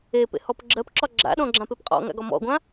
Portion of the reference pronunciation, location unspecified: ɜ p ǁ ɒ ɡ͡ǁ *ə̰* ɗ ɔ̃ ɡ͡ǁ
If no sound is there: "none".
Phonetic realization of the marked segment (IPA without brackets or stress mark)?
a̰